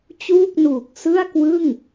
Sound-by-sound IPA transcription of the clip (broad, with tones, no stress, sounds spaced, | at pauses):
t͡ɕ uː˥˩ k̚ n uː˨˩ k̚ s ɯ˥˩ a̯ k w ɯ˥˩ ŋ